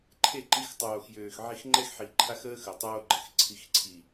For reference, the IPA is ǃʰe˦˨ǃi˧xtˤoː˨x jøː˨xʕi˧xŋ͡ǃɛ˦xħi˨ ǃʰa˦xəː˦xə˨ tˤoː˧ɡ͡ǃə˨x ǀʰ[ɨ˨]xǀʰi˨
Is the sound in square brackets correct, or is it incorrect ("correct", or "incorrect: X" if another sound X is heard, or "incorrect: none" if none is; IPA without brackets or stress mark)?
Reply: incorrect: i˨